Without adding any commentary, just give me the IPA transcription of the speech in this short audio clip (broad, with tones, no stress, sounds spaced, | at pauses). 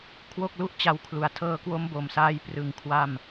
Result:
kʰ w o˥˩ k̚ l u˥˩ ʔ t͡ɕ a˧ w kʰ l u˩˦ a̯ tʰ ɤː˧ k w o˦˥ m b o˨˩ m s aː˧ j p r ɯ˨˩ ŋ kʰ w a˥˩ m